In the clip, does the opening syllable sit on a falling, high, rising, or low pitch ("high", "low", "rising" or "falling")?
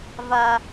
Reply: high